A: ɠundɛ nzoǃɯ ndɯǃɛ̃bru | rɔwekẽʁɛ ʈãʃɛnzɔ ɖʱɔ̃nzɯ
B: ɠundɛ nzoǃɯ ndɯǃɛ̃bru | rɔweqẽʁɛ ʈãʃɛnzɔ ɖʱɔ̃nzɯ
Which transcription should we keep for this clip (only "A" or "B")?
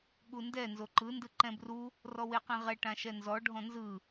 B